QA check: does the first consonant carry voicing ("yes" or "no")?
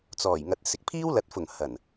no